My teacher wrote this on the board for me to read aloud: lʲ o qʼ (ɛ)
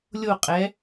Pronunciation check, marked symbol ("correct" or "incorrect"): correct